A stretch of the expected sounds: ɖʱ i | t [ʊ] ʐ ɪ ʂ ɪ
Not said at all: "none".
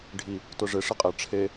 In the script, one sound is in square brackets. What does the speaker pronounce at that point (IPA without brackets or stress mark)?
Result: ʊ